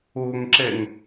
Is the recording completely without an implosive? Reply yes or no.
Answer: yes